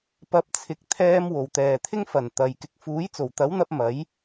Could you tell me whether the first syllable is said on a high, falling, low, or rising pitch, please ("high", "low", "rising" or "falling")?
rising